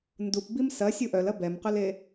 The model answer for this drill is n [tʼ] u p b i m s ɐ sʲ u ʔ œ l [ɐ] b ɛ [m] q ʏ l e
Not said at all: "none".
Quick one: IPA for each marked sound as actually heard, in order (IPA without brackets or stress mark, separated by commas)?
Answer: d, ɐ, m